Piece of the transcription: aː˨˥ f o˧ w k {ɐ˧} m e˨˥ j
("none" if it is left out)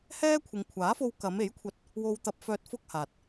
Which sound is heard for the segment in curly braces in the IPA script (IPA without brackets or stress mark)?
ɐ˨˧